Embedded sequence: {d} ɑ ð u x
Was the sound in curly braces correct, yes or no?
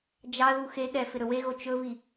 no